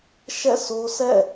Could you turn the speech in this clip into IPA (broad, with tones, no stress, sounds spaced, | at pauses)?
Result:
ʃ ɛ̰˦˨ s o˦ sʰ ɛ̰˦˨